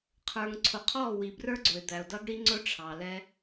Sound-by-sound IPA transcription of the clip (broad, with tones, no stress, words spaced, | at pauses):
qʰə˞˨ŋǀʰʊ˨qʰɔ˦˨ wi˨brə˞˦ɡ͡ǀʊ˨ɪ̯d̪æ˨ʊ̯ dʌ˦ɡɽi˦ŋ͡ǀʊ˦ ʈ͡ʂʰɑ˨lɛ˦